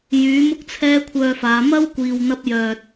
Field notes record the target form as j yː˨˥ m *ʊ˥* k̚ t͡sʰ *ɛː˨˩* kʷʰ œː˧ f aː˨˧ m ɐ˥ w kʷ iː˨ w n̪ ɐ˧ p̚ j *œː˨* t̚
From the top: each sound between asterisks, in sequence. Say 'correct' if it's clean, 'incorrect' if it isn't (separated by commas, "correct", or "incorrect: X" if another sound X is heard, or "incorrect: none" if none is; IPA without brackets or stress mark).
correct, incorrect: ɛː˥, correct